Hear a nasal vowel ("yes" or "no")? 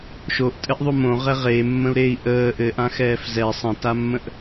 yes